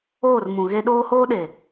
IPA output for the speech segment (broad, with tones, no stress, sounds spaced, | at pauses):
oː˦˨ r m ũ˨ ɣ e˦ ɗ oː˦ h oː˦ ɗ e˨